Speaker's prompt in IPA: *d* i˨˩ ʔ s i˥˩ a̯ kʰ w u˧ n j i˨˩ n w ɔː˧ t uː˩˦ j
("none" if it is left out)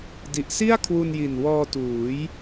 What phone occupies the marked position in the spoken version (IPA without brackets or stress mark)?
d